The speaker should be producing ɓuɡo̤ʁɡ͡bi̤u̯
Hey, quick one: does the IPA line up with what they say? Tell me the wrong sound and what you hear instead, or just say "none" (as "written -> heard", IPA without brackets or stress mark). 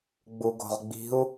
ɓ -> ɡ͡b